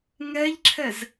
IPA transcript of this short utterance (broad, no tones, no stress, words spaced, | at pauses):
ŋɛʎǁʰɛz